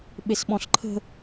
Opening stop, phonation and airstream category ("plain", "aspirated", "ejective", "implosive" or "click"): implosive